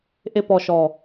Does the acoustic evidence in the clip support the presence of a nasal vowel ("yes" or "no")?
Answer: no